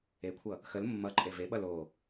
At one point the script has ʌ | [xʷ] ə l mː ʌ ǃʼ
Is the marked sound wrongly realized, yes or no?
yes